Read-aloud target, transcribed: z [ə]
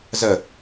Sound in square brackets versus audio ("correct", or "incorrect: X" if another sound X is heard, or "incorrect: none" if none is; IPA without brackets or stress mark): correct